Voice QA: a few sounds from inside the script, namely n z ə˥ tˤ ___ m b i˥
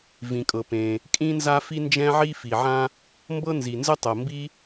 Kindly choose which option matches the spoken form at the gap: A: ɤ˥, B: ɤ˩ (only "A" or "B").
B